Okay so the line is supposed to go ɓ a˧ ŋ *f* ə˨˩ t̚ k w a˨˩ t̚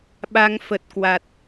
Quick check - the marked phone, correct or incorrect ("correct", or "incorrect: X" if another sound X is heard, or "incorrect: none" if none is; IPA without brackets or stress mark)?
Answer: correct